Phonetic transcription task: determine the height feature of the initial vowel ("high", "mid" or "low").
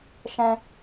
mid